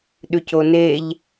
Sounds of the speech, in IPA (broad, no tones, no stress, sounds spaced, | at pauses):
ɗ ʉ c o n e ʎ